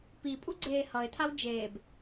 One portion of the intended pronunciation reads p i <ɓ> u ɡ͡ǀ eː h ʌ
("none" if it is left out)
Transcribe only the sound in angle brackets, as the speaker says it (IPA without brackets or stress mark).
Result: pʼ